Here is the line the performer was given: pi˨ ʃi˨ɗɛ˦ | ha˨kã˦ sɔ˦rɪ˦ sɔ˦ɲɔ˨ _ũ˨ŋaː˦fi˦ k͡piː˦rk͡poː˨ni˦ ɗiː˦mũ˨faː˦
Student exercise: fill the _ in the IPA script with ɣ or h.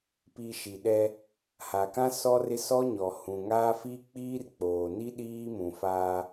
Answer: h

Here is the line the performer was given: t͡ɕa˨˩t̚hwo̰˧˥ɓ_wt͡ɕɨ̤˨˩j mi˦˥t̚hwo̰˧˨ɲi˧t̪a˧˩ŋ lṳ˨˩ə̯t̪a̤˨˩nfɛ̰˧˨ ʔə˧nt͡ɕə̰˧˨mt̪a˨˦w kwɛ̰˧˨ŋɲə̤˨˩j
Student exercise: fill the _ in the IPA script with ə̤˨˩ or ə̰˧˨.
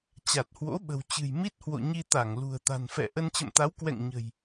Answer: ə̤˨˩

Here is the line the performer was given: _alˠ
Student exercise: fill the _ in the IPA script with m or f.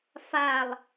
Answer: f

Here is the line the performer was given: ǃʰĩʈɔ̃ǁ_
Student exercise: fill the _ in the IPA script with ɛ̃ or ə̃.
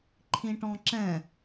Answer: ɛ̃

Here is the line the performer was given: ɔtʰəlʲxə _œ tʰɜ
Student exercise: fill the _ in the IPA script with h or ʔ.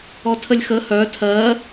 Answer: h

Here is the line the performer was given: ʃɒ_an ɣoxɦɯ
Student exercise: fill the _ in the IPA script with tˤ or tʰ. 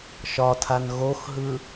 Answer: tʰ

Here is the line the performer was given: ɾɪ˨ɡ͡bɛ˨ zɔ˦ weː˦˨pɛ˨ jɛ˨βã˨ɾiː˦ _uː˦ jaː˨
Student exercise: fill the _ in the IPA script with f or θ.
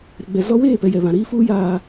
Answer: f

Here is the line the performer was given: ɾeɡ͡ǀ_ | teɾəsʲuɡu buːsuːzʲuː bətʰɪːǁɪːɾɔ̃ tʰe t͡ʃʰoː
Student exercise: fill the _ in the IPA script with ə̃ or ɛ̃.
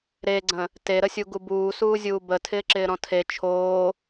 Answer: ə̃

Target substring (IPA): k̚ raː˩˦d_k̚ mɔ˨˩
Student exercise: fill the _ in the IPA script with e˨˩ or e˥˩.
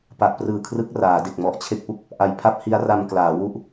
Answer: e˨˩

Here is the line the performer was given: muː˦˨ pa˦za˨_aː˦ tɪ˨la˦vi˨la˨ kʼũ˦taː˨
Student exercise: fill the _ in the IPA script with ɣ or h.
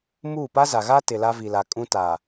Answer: ɣ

